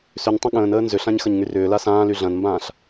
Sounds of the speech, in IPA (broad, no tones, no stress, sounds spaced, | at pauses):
s ʏ ɲ tˤ ɐ̃ ɠ ə̃ː n əː n z ʏ ɬ ã ɲ x ɐ ɲ ŋ y r ʏː l a s ãː l y ɮ ɐ̃ n m b ãː ɬ